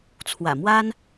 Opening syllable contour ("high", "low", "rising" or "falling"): low